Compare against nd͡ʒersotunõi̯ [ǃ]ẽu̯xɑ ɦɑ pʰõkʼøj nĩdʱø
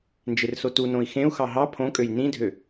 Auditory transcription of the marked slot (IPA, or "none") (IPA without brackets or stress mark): x